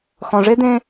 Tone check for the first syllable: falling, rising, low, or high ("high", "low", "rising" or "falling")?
low